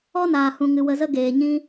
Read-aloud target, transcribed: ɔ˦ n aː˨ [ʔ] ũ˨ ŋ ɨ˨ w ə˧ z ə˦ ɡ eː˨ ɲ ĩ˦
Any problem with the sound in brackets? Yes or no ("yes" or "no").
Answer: yes